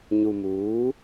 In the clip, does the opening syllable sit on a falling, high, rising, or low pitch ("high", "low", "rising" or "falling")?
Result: low